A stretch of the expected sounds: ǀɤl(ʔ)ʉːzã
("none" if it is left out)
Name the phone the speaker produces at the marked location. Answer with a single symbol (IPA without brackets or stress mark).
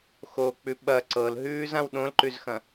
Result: ɦ